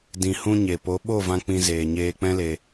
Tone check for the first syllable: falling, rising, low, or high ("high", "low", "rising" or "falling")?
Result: low